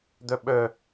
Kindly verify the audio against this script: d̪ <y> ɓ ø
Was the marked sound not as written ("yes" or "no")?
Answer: yes